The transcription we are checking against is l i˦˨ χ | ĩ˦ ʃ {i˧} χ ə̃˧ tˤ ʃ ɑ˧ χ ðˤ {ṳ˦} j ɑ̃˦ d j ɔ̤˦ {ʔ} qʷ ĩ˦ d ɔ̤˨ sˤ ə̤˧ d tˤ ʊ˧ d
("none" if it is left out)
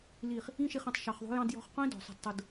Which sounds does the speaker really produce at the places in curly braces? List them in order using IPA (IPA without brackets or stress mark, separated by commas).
i˧, ṳ˦, χ